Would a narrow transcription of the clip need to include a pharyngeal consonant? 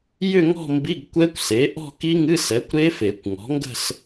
no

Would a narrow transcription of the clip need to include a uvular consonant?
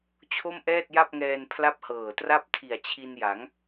no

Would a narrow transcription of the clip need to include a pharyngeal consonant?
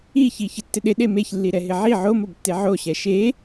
yes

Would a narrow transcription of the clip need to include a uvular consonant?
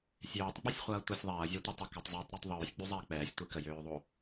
yes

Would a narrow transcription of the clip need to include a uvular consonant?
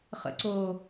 yes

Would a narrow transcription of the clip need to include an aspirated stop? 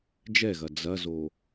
no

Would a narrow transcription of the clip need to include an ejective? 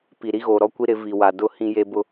no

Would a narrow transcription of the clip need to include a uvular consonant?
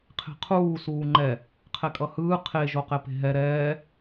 yes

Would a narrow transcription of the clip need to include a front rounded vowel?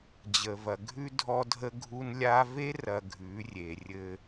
no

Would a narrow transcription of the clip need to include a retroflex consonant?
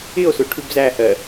yes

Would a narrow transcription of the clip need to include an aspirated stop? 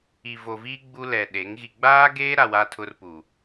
yes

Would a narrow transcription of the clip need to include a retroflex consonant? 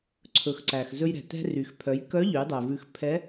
no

